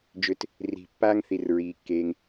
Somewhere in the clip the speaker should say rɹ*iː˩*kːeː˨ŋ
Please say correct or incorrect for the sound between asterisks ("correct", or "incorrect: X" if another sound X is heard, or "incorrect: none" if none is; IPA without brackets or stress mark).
correct